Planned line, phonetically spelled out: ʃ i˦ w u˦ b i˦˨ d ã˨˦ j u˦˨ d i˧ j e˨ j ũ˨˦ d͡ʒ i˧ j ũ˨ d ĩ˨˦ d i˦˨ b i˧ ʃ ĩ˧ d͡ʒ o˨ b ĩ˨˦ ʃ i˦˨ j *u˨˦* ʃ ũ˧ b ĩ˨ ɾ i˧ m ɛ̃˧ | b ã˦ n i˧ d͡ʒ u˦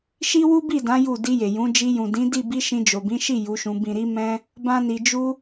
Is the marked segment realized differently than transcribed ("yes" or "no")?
no